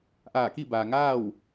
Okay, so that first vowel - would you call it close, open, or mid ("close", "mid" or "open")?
open